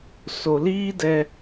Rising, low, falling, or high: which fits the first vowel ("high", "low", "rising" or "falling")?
low